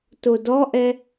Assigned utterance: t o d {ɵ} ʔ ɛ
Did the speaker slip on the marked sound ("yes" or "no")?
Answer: yes